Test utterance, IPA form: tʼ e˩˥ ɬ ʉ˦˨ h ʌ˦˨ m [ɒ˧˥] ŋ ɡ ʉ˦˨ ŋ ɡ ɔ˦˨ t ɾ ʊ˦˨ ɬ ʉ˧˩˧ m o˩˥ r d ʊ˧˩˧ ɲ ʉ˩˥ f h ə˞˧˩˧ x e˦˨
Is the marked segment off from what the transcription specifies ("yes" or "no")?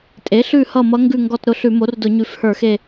yes